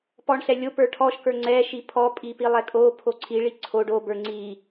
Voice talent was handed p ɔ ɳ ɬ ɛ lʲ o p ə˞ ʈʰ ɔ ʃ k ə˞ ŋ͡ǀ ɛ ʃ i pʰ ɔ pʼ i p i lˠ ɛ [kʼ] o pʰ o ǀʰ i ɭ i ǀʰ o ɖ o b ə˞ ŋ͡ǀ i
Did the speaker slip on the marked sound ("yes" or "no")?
no